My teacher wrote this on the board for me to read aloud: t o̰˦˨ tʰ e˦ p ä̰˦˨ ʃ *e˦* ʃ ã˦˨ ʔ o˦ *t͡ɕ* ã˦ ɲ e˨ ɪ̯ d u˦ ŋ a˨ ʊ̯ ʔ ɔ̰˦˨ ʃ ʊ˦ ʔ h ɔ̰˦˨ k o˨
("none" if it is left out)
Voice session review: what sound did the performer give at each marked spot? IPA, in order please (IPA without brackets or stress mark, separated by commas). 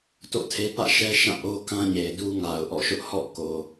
ɛ˦, k